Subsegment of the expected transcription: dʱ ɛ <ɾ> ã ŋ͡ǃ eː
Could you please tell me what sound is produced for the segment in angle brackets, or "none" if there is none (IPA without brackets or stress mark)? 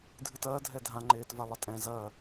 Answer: dʱ